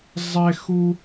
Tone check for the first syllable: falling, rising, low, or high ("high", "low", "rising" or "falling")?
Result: high